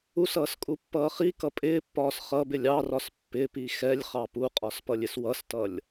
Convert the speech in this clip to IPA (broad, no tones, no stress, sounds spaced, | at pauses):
u s ʌː s kʼ u pː ʌː χ i k ʌ pʼ ɪː pː ɒː s χ ʌ b ɪ lʲ ɑ r ɒ s pː ɪ p i x ɛ lʲ χ ɑ p u qʼ ɒ s p ʌ lʲ ɪ s w ʌ s t ʌ lʲ